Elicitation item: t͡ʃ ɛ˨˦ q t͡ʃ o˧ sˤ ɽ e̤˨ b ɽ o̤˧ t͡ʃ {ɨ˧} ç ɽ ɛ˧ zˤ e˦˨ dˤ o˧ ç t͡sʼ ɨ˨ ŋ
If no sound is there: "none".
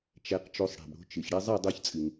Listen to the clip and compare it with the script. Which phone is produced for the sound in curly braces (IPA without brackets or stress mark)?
ɨ˨